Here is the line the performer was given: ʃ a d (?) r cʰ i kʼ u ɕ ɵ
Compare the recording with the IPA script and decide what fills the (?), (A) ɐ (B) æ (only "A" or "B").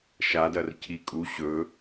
A